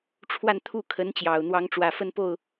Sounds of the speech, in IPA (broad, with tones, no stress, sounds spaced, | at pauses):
ʈ͡ʂʰ w a˥˧ n t̪ʰ u˥˩ kʰ ə˧˥ n t͡ɕ j ɑ˨˩ ʊ̯ n̪ w ɑ˧˥ ŋ ʈ͡ʂ w ä˨˩ f ə˥˧ n p o˥˩ ʊ̯